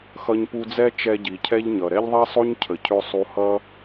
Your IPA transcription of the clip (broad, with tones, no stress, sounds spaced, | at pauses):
x ʌ˧ ɲ p u˧ d͡z ɛ˦ t͡ʃ ɛ˧ ɟ i˨ cʰ ɛ˦ ʎ ɲ ʌ˨ ɾ ɛ˦ ʎ ðˤ ɛ˦ sˤ o˦ ɲ cʰ ə˨ cʰ ø˧ sˤ u˧ h ʌ˦